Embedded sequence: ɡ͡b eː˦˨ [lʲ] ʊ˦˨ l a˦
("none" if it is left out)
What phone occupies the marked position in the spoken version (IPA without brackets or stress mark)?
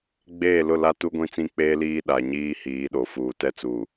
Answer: l